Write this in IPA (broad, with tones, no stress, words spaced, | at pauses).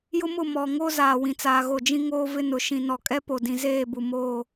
jʊ˦mʊ˦˨mɔ˨ ŋo˦ zaː˨wĩ˨t͡saː˨ɣo˨ d͡ʒĩ˦ŋoː˦vɪ˦nʊ˨ ʃĩ˨nɔ˨kʼɛ˦ po˨dĩ˨zeː˦˨ bu˨moː˦˨